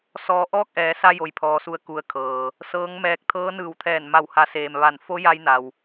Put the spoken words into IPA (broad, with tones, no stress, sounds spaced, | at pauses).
s ɔː˧ ʔ ɔː˥˨ k̚ ʔ ɛː˩˧ s a˧ j o˩ j pʰ ɔː˩ s u˩˧ ə̯ k u˩ ə̯ kʰ ɤː˩ | s ɤː˧˥ ŋ m ɛː˧ k̚ t̪ʰ ɤː˧˥ n ɯː˧˩ w t̪ʰ ɛː˧˩ n m a˧˩ w h a˩˧ s eː˩ m ʋ a˧˩ n f o˧˥ j a˧ j n a˩ w